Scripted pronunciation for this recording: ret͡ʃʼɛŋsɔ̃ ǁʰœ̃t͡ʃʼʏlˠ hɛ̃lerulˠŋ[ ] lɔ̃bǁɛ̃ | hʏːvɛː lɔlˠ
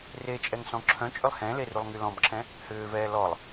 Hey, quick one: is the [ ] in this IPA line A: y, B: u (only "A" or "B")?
A